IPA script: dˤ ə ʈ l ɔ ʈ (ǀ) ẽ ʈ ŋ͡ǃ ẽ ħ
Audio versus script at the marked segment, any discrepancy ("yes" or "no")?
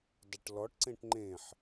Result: no